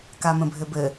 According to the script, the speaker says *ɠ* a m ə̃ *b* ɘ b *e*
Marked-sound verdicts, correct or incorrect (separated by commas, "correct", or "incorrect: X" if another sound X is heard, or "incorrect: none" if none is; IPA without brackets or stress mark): incorrect: k, incorrect: bʱ, incorrect: ɘ